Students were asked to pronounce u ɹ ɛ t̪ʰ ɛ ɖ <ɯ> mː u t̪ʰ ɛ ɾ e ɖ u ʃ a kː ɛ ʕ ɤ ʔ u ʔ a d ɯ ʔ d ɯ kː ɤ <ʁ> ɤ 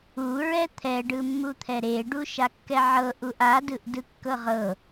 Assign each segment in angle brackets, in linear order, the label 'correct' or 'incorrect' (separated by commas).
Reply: correct, correct